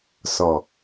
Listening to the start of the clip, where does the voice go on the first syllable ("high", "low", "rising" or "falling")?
low